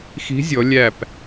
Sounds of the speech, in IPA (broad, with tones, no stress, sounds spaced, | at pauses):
x i̤˧˥ zʲ ɔ˩˧ lʲ æ˧˩ p